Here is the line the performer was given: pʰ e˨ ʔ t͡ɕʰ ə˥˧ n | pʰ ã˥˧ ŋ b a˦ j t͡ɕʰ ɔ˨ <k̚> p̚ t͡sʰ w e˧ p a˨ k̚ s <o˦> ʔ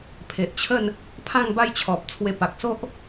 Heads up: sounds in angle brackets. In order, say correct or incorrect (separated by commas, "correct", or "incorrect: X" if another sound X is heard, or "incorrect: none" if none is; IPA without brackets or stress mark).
incorrect: none, correct